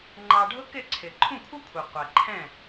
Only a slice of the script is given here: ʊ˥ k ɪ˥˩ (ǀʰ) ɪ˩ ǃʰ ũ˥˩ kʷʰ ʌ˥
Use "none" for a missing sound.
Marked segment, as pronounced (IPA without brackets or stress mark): ǀʰ